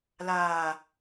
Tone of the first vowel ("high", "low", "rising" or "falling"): low